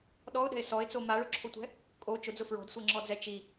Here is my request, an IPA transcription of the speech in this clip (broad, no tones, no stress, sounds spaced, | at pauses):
ɗ ɔ ʊ̯ ɗ ɛ̤ ɪ̯ s ɔ ɪ̯ t͡s o m a ɭ ʊ ǁʰ o tʷ ɛ̤ | kʼ o t͡ʃ ʊ d͡z ʊ f ɹ ɔ̤ d sʷ ɛ ŋ͡ǁ ɔ d͡z ɛ t͡ʃ i